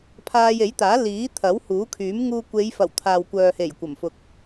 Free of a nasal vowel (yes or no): yes